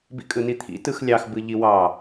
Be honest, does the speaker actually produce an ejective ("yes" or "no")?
yes